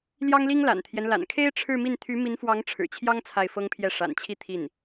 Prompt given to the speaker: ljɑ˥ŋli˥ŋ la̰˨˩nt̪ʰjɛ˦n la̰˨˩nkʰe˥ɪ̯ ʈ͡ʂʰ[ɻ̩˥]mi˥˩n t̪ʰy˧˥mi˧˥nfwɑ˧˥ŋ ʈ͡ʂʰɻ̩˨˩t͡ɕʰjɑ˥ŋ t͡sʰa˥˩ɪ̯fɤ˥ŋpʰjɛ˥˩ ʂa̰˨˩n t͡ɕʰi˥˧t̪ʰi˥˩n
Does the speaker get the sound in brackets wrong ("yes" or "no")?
yes